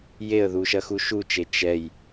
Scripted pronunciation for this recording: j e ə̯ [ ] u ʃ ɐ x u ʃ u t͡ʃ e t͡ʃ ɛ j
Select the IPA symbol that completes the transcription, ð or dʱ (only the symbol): ð